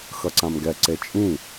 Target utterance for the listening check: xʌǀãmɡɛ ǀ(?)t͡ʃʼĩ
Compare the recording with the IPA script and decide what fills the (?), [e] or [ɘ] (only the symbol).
e